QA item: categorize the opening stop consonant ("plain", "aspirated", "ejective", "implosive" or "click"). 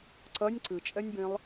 click